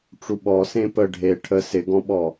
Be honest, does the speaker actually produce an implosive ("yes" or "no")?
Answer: yes